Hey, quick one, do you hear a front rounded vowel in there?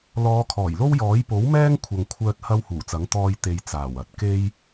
yes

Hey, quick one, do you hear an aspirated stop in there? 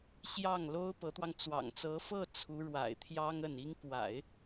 yes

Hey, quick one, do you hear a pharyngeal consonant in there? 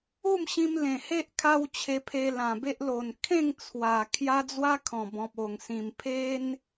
no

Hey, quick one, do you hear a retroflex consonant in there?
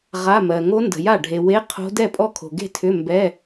yes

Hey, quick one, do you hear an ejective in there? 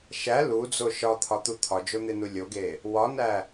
no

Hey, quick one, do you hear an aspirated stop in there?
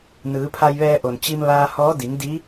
yes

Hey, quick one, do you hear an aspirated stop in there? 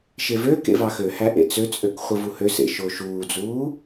no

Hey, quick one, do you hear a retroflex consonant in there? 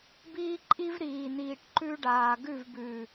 yes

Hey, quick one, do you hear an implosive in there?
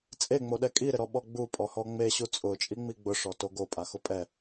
yes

